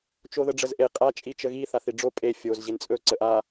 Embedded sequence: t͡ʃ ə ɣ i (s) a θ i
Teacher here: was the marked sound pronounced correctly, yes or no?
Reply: no